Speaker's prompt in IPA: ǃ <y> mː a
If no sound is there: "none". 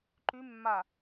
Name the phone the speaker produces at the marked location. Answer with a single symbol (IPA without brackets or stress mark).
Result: y